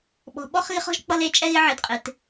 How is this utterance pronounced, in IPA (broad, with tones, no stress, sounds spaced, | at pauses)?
ɓ ɔ̤˨ ɓ ɔ˦ χ ɣ ɪ˦ χ ɔ̤˦ ʒ k͡p ʌ˧ l e˨˦ t͡ʃʼ ɛ˧ ɣ ɪ˧ ʕ ɪ˨˦ d qʼ ɪ˨ t